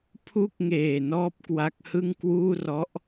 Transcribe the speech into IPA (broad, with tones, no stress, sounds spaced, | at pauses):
pʰ u˦˥ k̚ ŋ eː˨˩ n ɔː˥˩ p̚ k w a˦˥ k̚ h ɯ˥˩ ŋ k w uː˥˩ r ɔ˦˥ ʔ